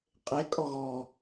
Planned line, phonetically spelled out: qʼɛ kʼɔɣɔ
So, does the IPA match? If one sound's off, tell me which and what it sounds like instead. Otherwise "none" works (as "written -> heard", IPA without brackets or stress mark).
ɛ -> e